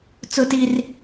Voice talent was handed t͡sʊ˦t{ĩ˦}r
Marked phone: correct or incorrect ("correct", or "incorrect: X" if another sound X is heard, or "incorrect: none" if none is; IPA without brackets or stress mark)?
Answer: incorrect: i˦